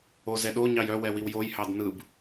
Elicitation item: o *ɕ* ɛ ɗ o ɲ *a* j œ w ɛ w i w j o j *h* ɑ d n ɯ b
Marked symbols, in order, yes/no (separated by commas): no, no, yes